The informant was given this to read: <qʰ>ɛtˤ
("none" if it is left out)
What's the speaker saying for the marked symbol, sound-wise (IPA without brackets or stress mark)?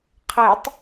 qʰ